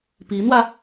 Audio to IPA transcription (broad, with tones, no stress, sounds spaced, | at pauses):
p i˧˥ n̪ w ä˧